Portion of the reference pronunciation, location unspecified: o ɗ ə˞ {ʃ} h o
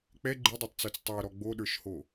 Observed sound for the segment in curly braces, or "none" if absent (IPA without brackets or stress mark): ʃ